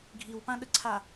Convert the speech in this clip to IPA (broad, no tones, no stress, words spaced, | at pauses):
ɡʱiwpãɗəǀʰa